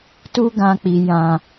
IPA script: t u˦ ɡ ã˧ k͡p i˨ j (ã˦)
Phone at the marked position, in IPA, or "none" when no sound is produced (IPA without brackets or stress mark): ã˨